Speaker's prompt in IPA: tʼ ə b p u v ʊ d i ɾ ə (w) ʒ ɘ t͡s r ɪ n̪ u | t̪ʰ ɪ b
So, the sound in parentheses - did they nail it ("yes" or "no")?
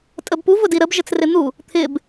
no